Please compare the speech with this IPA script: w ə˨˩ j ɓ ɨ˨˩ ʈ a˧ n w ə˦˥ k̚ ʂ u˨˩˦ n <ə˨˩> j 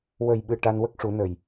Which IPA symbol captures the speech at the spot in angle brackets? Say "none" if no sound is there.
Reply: ə˨˩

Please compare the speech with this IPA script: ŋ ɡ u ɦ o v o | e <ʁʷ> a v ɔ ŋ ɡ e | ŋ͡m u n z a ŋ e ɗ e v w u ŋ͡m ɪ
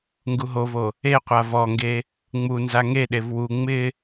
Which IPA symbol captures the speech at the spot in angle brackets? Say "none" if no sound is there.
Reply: qʷ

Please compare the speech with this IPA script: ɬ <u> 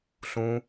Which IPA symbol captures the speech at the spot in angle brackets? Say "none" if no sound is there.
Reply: ũ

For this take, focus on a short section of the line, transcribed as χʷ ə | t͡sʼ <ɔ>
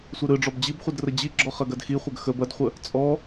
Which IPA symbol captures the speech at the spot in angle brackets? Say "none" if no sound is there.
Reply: ɔ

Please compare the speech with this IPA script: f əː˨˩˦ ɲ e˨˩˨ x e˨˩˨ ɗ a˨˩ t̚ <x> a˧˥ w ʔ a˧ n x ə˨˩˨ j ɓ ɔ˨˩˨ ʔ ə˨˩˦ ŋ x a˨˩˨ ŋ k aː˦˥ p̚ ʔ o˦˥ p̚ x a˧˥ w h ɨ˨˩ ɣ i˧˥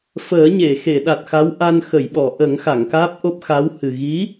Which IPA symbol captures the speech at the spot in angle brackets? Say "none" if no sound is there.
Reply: x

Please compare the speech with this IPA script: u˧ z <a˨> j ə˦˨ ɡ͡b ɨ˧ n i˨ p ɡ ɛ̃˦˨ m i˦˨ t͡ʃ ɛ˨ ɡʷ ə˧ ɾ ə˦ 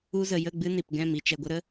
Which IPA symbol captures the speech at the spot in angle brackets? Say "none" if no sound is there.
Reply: ə˨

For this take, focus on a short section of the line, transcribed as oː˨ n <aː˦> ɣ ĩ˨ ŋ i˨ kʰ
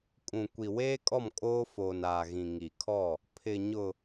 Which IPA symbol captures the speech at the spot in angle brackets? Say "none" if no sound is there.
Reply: aː˨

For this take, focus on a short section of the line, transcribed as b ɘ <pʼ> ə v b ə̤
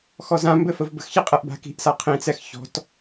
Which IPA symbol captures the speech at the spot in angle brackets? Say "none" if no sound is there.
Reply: f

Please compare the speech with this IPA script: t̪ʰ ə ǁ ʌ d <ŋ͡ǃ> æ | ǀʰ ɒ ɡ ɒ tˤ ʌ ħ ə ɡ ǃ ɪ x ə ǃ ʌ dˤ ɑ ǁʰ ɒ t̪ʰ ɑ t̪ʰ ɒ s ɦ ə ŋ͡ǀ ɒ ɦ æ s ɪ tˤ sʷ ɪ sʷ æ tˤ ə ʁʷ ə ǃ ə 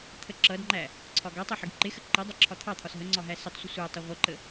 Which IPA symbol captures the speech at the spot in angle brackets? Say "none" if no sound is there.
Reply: ŋ͡ǃ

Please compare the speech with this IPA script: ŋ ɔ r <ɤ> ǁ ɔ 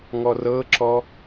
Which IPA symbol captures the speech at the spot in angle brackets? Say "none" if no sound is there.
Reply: ɤ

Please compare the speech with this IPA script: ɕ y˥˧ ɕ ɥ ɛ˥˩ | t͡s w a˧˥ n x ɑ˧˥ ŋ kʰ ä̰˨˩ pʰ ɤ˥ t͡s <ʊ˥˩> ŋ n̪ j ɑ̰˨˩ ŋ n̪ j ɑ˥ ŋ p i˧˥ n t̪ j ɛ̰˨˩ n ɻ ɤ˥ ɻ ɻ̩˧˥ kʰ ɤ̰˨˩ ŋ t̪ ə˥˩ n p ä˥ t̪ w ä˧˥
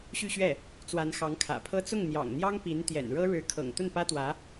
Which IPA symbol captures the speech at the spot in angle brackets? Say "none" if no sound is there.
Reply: ʊ˥˩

